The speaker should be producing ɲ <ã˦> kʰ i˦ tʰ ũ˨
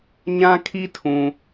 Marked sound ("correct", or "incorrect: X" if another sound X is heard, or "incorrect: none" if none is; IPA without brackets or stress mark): correct